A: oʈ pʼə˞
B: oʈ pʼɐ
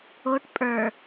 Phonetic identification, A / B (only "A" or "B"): A